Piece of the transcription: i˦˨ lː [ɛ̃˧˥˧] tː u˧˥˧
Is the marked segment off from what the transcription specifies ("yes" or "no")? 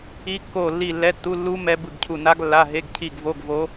yes